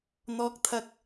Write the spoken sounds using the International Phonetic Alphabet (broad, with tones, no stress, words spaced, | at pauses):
n̪ɔː˧k̚t̪ʰɐ˧k̚